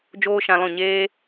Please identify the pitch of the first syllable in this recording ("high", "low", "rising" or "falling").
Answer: high